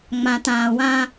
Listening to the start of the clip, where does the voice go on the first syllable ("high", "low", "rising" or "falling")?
low